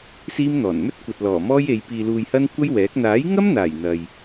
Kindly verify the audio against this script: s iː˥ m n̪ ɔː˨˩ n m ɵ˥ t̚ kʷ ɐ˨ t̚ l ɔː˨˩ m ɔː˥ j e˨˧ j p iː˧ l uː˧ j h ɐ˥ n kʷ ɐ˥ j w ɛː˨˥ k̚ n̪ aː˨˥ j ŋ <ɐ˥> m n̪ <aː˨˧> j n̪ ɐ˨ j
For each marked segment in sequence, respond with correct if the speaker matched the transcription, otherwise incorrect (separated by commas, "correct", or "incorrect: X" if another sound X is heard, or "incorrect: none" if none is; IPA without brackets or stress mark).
correct, incorrect: aː˨˩